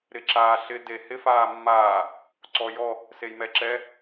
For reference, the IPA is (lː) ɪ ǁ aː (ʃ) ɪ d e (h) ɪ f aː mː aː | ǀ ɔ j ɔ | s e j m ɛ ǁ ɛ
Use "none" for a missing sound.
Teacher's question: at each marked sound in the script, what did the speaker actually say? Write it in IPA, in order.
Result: ɾ, ɬ, h

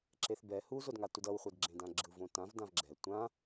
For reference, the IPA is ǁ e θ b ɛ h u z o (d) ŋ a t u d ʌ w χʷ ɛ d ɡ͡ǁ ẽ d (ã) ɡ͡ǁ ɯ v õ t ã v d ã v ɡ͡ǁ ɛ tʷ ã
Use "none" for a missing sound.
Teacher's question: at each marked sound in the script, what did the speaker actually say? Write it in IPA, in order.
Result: d, ã

